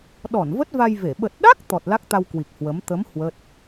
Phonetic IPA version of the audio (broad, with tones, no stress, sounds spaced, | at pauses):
ɗ ɔ˧˩ n v ə˦˥ t̚ v a˧ j v e˧˩ ɓ ə˨˩ t̚ ɗ a˦˥ k̚ t̪ ɔ˨˩ t̚ l a˦˥ k̚ t̪ a˧ w k w i˨˩ k̚ h w ə˨˦ m t̪ ə˨˦ m h w ə˦˥ t̚